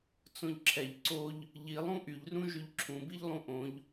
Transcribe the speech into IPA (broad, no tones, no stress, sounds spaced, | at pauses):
t͡s õ ʎ ǁʰ ɛ ʎ ǀ o ʎ | ʎ i lˠ ũ ʔ y ʎ r ũ ʒ y ʎ ǁʰ ũ b i ʎ lˠ ũ ʔ õ ʎ